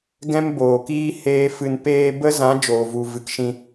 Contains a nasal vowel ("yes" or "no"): yes